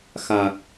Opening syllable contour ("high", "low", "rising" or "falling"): low